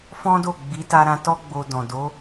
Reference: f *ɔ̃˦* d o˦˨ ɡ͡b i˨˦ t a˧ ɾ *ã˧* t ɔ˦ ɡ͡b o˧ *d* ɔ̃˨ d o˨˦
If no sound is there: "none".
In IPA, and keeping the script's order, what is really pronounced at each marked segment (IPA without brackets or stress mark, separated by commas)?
ɔ̃˦, ã˧, d